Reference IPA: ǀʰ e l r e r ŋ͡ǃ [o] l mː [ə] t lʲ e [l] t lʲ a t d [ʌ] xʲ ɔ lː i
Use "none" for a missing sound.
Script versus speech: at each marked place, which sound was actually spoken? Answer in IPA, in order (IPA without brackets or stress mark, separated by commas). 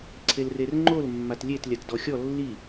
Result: o, a, none, ɔ